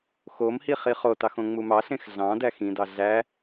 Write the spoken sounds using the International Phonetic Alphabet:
x o m h i χ i χ o t ɑ x õ ŋ͡m u m ɑ ɬ ẽ x ɮ ɑ̃ d æ x ĩ d ɑ ɮ æ

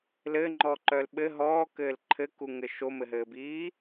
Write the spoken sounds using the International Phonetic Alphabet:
l ɘː ŋ͡ǃ ɔː ǃ œː l ɓ ɘ ɦ ɔː k ɘː l ǃʰ ɘ k u ŋ ɘ ʃ o m ɘ ɦ ɘː b iː

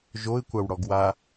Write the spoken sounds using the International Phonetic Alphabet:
ʒ o ɪ̯ kʷ a w ɽ ɔ ɡ w a

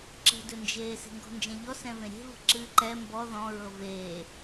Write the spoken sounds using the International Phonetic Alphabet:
ǁ ə̤ d ɵ n d͡ʒ eː s e̤ ŋ ɡ ɔ̤ n d͡ʒ ɛ̃ ʎ ɔ s ɛ̃ v ẽ ɾʲ e̤ v ə̤ ǁ ɨː ǃ ɛ m b ɔ ð ɔ̃ ɹ ɤ v eː

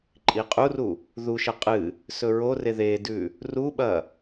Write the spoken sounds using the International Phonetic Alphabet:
ǃʼ i qʼ u r u | ð u ʃ ɐ qʼ ɨ | s ɵ ɹ o r e ð e d ʉ | r u ɓ ɐ

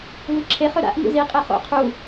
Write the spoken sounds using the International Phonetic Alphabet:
v ɨ ǁʰ e χ ɵ ɾ a̰ ʔ ŋ ṵ z i qʼ e χ o̰ qʰ u

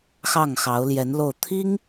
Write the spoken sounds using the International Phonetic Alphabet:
x ɑ˥˩ ŋ x ɑ˧˥ ʊ̯ l j ɛ˧˥ n l o˥˩ ʊ̯ t̪ʰ i˥ ŋ

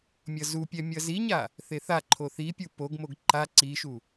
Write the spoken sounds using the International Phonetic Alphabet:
mʲ ʌ z u pʲ ɛ mʲ ʌ z i ɲ a | θ e θ a ǃʰ o θ i pʲ u p o ɡ m o ɡ ǃ a ǀ i ʃ u

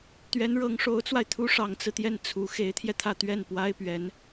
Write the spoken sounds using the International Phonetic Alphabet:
t̪ ɥ ɛ˧˥ n ɻ ɤ˧˥ ŋ ʂ o˧˥ ʊ̯ t͡s w a˧ ɪ̯ t̪ʰ u˥ ʂ ɑ˧˥ ŋ t͡s ɹ̩˧ t̪ j ɛ˥˩ n t͡sʰ u˧˥ x e˧˥ ɪ̯ t̪ʰ j ɛ˧ t̪ʰ ä˥˧ t̪ ɥ ɛ˥˩ n p w a˥ ɪ̯ p ɥ ɛ˧˥ n

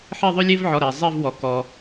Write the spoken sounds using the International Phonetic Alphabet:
ħ e˥˧ ðˤ ø˥ lʲ e˥ v ʕ ɔ˩˧˩ ɾ ɛ˩ zˤ i˥˧ v w ɔ˩ k ɔ˩

